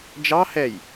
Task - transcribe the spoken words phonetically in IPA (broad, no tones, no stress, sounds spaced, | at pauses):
d͡ʒ ɑ h ɛ j